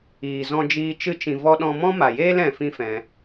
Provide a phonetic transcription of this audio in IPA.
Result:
iː˨ z ɔ̃˧ d͡ʒ iː˧ t͡ʃ ɨ˧ t͡ʃ ĩ˨ v ɔ˦ ɗ ɔ̃˧ m ɔ̃˦ m a˨ j eː˦ l ɛ̃˧ f ĩ˦ f ɛ̃˧

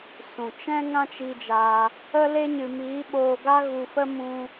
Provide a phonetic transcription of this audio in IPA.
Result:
s ũ˨ t͡ʃ ɛ̃˦ ŋ ã˦ t͡ʃ i˧ d͡ʒ aː˧ | ə˦ l e˦ ɲ ɨ˧ m iː˨˦ ɓ oː˧ ɡ a˦ ɣ u˧ f ə˦ m ũ˦

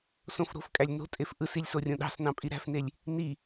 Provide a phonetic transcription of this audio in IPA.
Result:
s õ f ɾ o̤ f kʼ æ lʲ n o̤ tʼ e f ʔ ɯ s i lʲ s o rʲ õ ɗ ɑ̤ s n ɑ̃ pʼ i ɾ æ̤ f n e lʲ | n i

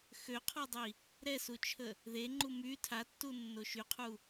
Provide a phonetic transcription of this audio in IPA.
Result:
x ø qʰ ɔ dˤ i | ɾ ɛ s u t͡ʃʰ ə | ð e ŋ͡ǃ u m y tʰ a tː u nː o ʃ y qʰ u

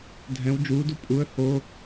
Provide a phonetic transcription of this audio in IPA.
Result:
dʱ ɛ̃ w d͡ʒ uː d u pʼ u ə̯ h o

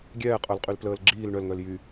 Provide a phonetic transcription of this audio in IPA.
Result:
ɡʲ ɛː qʼ œ l qʼ y l p l əː l ɡ͡ǁ iː l ɳ œ l ŋ œ l j y

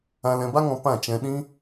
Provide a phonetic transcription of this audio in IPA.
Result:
ã˧ l ɛ̃˧ b a˦ ŋ ɔ̃˧ p ã˦˨ t͡ʃ ɛ̃˧ ɗ ĩ˦

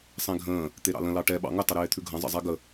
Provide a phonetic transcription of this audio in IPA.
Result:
sˤ ẽ ɡʱ ə̃ː | t̪ e ɾ ɑ̰ l ə̃ l ɑ ʈ ɛ ɓ ɑ̰ ŋ ə tˤ ə ɾ eː t̪ʰ ʉ ɡʱ ɐ̃ zˤ ə̰ zˤ ɛ ɡ ə

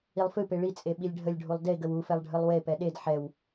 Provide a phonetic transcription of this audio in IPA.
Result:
i lˠ f ɨ p e ɭ i t͡sʼ e ɓ i lʲ ɖʱ ə lʲ ɖʱ u lˠ d e ɡ ə w u f ɛ lˠ ɖʱ ɨ lˠ w e p ɛ ɗ e d ħ ɛ w

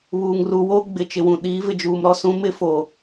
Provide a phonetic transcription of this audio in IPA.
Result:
β uː˨ ŋ r u˨ w oː˦ ɡ͡b ɪ˨ t͡ʃ ɪ˨ w ũ˨ ɗ iː˨˦ v ɪ˨ d͡ʒ uː˨ m ɾ ɔ˦ s ũ˦ m ɪ˦ f o˨

